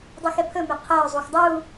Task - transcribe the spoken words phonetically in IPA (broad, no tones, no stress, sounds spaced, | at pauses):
dˤ u x ɛ pʰ ɵ m e qʰ ɛ o̯ zˤ u x dˤ u